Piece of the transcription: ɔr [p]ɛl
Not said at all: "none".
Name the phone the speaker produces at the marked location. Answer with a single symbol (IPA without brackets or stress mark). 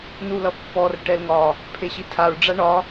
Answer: ʈ